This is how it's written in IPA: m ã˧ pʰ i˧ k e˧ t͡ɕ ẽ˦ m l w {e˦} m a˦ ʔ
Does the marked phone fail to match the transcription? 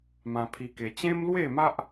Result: yes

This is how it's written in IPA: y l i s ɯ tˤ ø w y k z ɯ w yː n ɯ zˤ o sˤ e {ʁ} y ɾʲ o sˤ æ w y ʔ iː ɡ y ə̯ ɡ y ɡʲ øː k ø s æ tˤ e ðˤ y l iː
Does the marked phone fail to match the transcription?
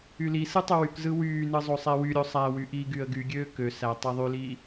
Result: yes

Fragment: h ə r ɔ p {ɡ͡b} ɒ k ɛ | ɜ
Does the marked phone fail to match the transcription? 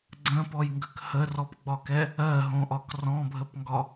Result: no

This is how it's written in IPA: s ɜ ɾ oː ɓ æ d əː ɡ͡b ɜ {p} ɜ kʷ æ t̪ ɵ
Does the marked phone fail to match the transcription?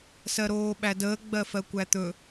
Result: yes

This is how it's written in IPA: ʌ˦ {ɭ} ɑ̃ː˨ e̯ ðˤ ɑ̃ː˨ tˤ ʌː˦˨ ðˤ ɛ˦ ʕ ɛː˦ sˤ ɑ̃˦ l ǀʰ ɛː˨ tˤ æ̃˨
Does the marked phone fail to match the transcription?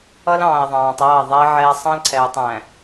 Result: yes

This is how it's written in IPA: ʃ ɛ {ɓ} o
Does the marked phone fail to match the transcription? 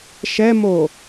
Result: yes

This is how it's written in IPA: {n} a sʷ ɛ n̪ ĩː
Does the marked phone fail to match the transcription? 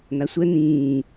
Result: no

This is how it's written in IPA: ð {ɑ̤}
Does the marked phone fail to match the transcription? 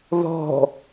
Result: yes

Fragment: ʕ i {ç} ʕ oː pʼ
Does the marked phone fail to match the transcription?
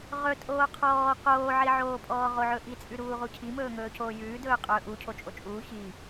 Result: yes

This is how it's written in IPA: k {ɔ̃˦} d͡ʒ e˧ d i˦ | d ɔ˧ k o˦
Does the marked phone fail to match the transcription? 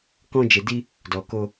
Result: no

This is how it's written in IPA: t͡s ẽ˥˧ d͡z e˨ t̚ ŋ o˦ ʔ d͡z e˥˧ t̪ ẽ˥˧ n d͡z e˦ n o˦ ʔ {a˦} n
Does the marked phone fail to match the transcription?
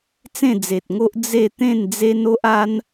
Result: no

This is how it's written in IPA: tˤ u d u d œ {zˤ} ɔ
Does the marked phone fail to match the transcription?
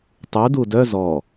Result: yes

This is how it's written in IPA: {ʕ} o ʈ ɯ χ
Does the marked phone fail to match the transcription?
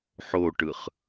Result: yes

